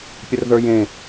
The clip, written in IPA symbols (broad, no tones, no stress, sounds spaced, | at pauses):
pʲ ə r ð ə˞ j ẽ